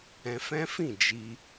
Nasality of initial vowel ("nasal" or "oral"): nasal